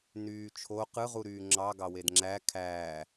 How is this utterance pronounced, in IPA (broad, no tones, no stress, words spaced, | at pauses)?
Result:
nyːt͡ʃʰo qɯʁuɾyː ŋ͡ǁɑ ɡɑwedŋ͡ǁæ kʰæː